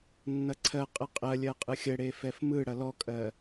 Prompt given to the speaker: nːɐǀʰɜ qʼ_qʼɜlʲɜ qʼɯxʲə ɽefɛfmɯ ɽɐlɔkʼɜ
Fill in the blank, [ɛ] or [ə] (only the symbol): ə